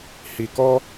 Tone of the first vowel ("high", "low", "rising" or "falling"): low